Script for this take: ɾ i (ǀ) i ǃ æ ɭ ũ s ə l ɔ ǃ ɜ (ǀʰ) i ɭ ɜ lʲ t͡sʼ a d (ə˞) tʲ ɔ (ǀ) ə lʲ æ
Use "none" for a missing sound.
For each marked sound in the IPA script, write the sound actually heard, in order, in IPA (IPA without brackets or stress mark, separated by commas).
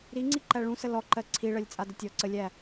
ŋ͡ǀ, ǀʰ, ə, ǀ